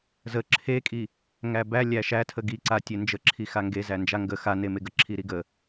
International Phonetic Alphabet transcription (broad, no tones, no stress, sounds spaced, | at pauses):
z ə ǁʰ e kʼ i | ŋ æ b æ lʲ æ ʃ æ tʰ ə ɡ i ǀ a tʲ e n d͡ʒ ə ǁʰ i x a ŋ ɡ e z æ n d͡ʒ a ŋ ɡ ə x a n e m e ɡ ə ǁʰ i ɾ i ɡ ə